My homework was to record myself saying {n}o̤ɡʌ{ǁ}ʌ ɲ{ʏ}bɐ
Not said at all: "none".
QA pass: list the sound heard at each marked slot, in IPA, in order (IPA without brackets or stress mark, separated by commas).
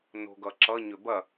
n, ǁ, ʏ